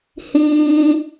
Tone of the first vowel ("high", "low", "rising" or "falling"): high